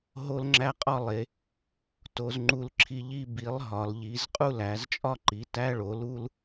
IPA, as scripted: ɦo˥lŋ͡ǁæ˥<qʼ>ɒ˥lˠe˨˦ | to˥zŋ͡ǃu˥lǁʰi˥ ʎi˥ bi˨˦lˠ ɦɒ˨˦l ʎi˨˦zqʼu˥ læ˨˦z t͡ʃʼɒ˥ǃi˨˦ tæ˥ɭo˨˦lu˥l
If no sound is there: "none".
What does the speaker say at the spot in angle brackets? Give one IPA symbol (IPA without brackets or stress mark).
qʼ